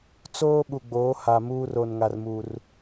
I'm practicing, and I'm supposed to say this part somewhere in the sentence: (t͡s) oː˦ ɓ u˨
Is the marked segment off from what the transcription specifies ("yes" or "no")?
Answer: no